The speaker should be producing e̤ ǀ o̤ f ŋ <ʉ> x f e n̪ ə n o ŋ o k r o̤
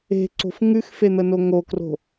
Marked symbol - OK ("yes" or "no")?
yes